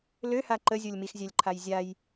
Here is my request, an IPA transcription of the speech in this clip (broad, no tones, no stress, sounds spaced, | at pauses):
l ø h a ǃ ə zʲ o lʲ m i x zʲ æ lʲ ǃʰ a j zʲ a j